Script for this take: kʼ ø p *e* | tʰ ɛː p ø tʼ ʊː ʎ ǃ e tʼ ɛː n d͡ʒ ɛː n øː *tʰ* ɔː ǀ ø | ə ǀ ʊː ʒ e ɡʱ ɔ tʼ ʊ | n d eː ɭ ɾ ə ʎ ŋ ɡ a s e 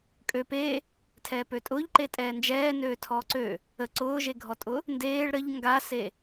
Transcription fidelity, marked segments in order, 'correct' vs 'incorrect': correct, correct

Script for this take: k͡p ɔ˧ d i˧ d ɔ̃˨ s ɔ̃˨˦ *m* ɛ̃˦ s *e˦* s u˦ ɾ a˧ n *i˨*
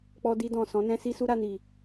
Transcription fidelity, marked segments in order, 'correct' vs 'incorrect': incorrect: n, incorrect: i˦, correct

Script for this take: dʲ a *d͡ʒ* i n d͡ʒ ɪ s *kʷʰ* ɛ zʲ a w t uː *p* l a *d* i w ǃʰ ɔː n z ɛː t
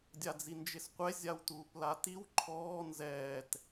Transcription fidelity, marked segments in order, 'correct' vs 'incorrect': incorrect: d͡z, incorrect: qʷ, correct, incorrect: t

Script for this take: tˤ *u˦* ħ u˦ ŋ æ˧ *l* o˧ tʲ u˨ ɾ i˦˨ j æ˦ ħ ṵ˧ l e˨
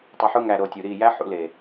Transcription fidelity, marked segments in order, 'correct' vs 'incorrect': incorrect: u˧, incorrect: ɾ

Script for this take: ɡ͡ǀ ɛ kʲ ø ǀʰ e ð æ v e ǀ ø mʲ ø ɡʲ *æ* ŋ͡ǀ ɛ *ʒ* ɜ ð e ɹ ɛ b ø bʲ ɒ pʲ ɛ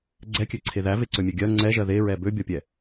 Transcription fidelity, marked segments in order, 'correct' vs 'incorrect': incorrect: ɜ, correct

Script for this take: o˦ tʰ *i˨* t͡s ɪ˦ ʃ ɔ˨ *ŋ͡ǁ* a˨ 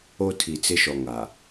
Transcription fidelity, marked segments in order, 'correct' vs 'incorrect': correct, incorrect: ŋ

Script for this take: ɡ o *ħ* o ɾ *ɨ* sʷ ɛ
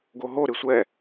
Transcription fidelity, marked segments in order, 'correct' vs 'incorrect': incorrect: ɦ, correct

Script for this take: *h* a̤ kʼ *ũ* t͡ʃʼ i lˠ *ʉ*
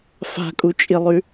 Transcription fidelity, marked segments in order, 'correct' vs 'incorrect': incorrect: f, incorrect: u, correct

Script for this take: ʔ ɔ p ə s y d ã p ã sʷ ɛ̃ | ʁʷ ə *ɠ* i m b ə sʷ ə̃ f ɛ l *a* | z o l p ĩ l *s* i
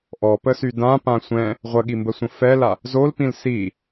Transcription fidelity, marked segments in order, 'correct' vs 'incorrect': correct, correct, correct

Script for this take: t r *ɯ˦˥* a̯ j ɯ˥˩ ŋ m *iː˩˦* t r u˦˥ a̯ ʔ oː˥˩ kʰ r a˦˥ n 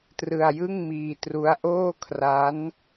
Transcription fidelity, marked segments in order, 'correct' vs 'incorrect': incorrect: ɯ˧, incorrect: iː˧

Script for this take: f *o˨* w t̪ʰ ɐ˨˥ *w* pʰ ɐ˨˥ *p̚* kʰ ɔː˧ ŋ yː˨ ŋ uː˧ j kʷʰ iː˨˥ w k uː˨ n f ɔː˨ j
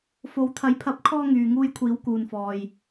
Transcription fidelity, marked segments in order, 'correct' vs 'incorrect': incorrect: o˨˥, incorrect: j, correct

